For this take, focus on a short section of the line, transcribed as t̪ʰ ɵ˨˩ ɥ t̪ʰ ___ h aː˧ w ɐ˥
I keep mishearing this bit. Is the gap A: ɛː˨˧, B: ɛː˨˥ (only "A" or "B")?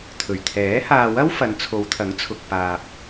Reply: B